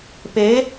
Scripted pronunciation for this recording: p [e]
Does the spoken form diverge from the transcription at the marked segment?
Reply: no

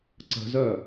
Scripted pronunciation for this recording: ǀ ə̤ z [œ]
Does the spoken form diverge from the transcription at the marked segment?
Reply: no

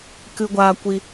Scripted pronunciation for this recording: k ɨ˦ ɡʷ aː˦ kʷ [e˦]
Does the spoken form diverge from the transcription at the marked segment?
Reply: yes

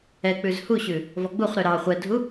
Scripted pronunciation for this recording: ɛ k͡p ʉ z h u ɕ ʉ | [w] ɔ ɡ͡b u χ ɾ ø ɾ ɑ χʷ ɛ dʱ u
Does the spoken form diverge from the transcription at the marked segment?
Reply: yes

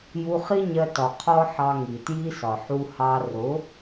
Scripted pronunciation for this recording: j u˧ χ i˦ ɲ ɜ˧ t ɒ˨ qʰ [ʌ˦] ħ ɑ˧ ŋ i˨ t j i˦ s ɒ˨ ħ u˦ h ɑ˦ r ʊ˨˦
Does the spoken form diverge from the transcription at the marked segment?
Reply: yes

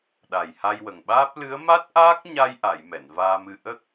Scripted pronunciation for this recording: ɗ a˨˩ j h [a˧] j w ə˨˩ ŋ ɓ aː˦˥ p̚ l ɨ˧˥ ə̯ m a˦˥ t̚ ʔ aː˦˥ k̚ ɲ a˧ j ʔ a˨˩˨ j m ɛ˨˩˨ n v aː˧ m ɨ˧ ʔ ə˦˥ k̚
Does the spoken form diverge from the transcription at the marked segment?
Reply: no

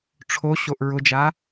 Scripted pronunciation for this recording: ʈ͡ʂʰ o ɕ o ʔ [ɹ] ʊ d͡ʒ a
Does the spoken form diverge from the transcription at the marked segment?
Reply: no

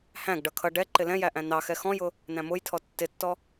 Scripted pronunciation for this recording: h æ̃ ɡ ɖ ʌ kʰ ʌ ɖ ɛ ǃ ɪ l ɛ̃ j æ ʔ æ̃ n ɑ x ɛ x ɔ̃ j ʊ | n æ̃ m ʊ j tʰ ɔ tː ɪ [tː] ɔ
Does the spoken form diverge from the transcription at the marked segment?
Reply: no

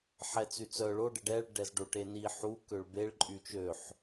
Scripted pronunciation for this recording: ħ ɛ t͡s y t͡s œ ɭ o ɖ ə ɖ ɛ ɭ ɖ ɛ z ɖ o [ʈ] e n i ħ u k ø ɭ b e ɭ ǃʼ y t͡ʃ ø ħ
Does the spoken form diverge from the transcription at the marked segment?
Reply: no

